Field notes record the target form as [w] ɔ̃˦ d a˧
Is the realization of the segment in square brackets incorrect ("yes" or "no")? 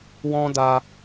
no